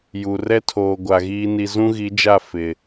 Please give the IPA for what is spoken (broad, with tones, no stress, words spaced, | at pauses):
ju˨ rɛ˦tʰoː˨ ɡʷa˨ɣiː˦ni˦ zũ˦ɣi˨˦d͡ʒa˦˨ fɪ˨